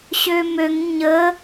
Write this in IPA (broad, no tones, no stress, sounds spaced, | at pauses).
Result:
ɕ ø m ø ŋ ɲ ə